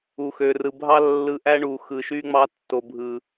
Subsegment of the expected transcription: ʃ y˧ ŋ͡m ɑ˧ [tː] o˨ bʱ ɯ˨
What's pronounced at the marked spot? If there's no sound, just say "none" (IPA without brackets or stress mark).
tː